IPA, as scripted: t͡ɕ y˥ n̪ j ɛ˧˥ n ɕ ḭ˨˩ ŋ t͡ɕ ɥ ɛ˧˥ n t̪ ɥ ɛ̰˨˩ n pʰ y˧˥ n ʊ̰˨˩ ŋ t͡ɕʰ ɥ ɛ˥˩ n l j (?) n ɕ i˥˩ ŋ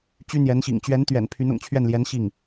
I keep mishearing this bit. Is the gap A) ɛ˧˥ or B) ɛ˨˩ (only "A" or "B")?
A